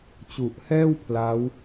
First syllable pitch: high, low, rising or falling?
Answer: low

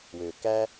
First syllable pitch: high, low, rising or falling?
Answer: low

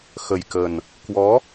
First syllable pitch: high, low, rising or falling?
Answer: low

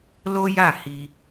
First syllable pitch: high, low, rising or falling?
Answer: high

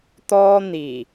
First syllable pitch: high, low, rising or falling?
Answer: high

